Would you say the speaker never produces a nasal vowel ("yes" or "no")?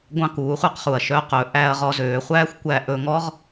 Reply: no